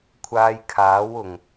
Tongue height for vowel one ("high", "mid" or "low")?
low